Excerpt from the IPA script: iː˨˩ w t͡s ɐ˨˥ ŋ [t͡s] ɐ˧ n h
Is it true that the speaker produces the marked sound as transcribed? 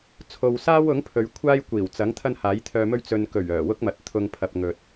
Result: no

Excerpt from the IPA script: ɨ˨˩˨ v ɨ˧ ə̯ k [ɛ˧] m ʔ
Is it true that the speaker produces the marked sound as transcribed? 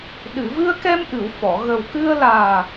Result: yes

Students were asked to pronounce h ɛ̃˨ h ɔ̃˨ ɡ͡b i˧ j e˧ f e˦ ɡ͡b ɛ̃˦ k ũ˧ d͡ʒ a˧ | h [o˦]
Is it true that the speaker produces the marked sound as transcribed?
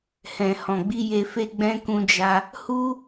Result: no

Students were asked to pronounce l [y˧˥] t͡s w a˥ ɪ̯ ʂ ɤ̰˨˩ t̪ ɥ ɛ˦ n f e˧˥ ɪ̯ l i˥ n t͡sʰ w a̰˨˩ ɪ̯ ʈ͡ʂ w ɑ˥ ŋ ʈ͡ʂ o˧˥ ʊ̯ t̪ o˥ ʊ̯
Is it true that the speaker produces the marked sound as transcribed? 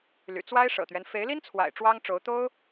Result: no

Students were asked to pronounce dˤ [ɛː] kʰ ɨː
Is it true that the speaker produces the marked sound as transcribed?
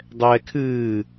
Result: yes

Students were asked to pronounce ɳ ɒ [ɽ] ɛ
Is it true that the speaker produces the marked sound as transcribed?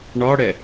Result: yes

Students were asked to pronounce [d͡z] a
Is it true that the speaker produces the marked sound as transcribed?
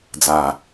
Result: yes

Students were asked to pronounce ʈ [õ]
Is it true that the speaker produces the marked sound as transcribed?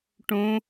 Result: yes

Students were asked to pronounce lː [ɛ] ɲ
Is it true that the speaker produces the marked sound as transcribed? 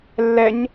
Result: yes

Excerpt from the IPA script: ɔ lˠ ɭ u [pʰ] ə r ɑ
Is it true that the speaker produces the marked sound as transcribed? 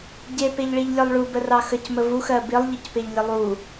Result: no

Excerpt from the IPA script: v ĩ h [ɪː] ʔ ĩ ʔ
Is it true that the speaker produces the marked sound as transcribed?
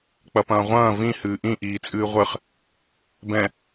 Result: no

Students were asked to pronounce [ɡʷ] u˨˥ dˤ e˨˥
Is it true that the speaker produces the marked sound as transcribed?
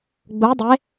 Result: no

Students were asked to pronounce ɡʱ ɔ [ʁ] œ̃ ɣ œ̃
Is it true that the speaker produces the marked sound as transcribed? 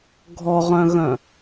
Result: yes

